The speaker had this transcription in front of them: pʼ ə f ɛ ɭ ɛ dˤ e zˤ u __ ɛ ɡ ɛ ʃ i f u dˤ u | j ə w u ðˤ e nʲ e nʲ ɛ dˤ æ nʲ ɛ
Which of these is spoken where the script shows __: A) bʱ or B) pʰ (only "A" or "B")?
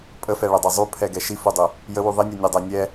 B